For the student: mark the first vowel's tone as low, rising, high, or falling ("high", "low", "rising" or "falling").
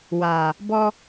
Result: low